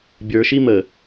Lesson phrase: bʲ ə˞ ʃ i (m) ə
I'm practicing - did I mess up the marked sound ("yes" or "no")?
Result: no